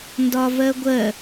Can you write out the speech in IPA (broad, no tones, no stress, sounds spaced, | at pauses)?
n d ɒ v ɜ ɡʷ ɜ